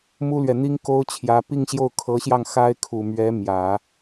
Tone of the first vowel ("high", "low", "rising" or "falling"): high